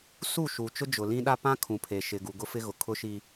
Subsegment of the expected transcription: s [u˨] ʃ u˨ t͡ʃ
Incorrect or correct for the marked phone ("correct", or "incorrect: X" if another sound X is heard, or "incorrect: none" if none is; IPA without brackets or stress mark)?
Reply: incorrect: u˦˨